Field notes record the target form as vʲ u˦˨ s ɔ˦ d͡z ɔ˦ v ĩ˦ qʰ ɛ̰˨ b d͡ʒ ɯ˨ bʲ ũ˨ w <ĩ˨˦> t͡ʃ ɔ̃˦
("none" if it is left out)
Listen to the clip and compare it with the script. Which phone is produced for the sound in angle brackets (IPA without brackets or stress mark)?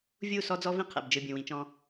ĩ˨˦